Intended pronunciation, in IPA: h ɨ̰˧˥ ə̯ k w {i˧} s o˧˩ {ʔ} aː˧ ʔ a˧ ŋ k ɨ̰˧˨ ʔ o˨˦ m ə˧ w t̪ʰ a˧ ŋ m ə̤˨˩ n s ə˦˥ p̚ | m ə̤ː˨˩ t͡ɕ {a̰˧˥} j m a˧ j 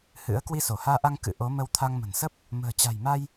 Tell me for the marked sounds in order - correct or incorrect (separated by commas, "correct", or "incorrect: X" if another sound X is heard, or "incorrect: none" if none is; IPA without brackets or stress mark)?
correct, incorrect: h, incorrect: a̤˨˩